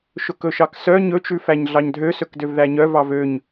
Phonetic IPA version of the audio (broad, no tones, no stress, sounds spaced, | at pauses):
ʃ ɵ k ɵ ʃ ɑ k s œ ɲ ɵ t͡ʃ ʉ f æ ɲ ɮ ɑ ɲ dʱ ø s ɵ k d ø v ð æ ɲ œ v ɑ v ø ɲ